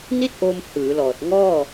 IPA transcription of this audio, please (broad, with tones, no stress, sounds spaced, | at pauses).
n i˥˩ t̚ ʔ o˧ m h ɯː˩˦ l ɔː˨˩ t̚ ŋ ɔː˥˩